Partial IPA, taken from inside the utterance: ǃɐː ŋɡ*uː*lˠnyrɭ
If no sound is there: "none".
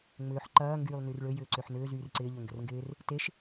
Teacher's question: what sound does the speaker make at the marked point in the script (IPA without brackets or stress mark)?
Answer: yː